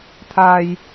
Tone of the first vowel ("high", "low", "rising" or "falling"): low